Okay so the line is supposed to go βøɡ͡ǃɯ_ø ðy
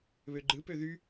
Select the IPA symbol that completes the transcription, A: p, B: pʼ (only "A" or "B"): A